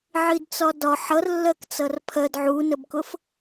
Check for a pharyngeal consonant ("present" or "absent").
present